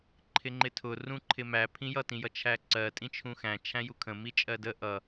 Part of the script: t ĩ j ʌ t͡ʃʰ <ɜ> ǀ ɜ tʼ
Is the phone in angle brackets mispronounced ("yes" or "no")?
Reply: yes